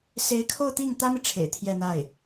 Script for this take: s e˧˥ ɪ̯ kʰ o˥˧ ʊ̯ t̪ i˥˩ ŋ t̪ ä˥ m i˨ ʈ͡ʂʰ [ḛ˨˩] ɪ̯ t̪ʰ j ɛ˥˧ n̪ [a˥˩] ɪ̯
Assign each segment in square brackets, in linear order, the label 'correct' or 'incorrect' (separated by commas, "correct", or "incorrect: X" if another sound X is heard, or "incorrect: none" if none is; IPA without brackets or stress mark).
correct, correct